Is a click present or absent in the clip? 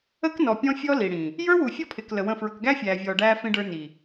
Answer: absent